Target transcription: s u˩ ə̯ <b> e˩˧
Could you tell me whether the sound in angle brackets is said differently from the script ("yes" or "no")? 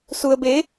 no